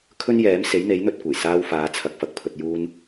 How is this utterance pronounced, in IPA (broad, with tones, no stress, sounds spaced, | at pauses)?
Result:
kʰ ɵ˥ n j ɛː˨˥ m s e˨˥ j n̪ e˨˥ j n̪ ɵ˧ t̚ kʷ ɐ˨˩ j s aː˧ w f aː˨˧ t͡sʰ ɐ˨˥ k̚ f ɐ˨ k̚ pʰ ɵ˧ t̚ j uː˧ n